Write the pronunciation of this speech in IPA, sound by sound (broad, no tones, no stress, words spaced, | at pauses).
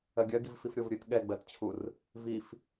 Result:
ɜɡʲɜɡivfif ɾʲovɾʲɨt ɠɛɡ͡bɜtt͡ɕʰur | vif